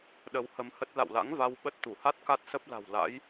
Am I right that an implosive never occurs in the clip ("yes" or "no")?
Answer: no